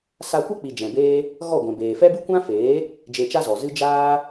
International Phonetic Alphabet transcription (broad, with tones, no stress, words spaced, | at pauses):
sa˧kʷɛ˦k͡pi˨ d͡ʒɛ̃˨beː˦ | ɣɔ˦˨ ɡʷɛ̃˨beː˨fɛ˦bɨ˦ kʷã˦feː˨˦ | d͡ʒe˧t͡ʃa˦zɔ˨zɨ˦ d͡ʒaː˦